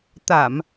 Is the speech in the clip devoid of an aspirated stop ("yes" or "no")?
yes